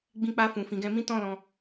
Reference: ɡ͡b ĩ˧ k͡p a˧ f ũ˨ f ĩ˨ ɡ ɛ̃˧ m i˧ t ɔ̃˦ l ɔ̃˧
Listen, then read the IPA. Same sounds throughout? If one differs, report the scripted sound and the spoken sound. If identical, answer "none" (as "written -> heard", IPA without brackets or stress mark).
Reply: i˧ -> ĩ˧